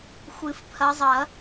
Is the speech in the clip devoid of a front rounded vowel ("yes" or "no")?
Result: yes